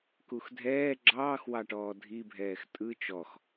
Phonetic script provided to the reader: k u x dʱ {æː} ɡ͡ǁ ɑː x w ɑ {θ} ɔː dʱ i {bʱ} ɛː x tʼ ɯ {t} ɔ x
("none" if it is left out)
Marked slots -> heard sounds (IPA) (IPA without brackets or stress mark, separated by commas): ɛː, ʈ, bʱ, t͡ʃ